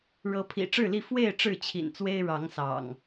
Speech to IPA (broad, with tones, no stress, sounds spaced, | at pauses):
ɻ ɤ˨˦ pʰ ḭ˨˩ ʈ͡ʂ ɻ̩˥˨ l i˥˨ f w e˥˨ ɪ̯ ʈ͡ʂ ɻ̩˥˨ t͡ɕʰ ḭ˨˩ n t͡s w e˦ ɪ̯ ɻ ɑ˨˦ ŋ s ɑ̰˨˩ ŋ